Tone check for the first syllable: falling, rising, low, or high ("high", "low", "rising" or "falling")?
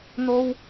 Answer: high